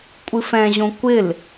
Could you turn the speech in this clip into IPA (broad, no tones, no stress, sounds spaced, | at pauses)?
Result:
kʷʼ ɨ f ɛ̃ ʑ õ kʷ ɪ l